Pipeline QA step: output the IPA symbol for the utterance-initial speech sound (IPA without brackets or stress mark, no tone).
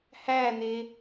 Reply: h